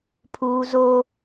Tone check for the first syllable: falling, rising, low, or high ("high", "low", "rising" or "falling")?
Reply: high